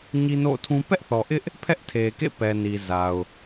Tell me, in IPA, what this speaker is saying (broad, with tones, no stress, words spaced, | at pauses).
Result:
ɲi˦no̰˦˨tʰũ˦ pɛ˦ʔθɔ˨ʔɪ˦ʔ | pʰɛ˦ʔtʰe˨kḛ˦˨pɛ˨ ni˨za˨ʊ̯